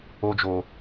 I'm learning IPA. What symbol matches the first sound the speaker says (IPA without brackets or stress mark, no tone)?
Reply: o